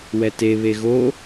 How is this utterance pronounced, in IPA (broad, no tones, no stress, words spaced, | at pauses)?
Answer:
wɛte βeɣo